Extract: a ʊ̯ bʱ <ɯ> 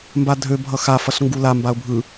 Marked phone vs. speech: correct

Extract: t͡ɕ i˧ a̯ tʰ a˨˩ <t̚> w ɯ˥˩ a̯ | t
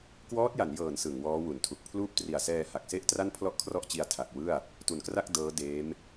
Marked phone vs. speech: incorrect: k̚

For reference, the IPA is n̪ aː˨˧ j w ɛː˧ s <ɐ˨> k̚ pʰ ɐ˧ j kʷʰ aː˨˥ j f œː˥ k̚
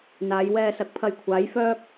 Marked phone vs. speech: incorrect: ɐ˨˥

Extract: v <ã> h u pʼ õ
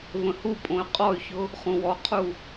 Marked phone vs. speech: incorrect: ə̃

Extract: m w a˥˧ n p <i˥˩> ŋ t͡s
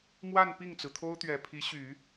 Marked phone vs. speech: correct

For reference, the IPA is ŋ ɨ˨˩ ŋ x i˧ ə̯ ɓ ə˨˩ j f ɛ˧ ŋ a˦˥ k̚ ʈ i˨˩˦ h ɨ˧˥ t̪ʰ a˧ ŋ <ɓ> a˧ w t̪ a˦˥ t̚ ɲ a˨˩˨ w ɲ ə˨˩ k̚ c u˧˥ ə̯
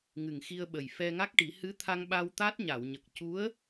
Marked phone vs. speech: correct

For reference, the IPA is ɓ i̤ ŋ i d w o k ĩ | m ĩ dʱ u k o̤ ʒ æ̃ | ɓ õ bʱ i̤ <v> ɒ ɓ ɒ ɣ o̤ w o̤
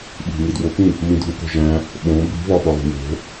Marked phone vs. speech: correct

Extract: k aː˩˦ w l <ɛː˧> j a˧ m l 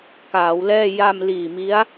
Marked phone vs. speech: incorrect: ɛː˥˩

